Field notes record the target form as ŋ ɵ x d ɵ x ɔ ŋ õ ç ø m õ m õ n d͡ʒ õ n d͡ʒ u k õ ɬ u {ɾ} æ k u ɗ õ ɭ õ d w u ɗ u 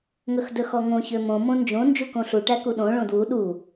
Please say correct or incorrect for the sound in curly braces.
incorrect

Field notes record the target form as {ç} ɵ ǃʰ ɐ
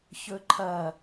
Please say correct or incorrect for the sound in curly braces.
correct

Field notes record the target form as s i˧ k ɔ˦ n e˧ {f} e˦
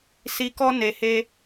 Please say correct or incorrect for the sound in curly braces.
incorrect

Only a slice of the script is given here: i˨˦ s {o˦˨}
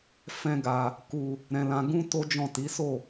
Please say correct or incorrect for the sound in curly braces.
correct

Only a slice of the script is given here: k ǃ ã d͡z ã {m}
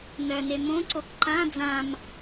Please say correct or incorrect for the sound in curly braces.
correct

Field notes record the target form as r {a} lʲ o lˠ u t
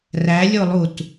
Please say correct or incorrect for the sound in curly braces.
incorrect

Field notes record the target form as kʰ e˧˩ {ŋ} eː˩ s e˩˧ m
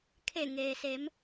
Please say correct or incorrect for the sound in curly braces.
correct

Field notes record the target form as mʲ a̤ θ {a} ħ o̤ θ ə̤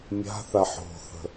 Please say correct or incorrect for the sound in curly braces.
correct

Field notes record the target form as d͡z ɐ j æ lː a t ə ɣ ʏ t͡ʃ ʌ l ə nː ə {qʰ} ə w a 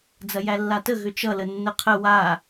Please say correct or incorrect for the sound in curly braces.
correct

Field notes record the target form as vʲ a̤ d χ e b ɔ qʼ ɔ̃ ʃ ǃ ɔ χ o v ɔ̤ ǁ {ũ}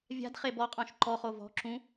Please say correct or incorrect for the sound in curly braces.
correct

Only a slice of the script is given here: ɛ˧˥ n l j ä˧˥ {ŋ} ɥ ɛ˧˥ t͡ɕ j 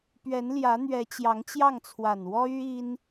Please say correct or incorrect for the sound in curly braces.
incorrect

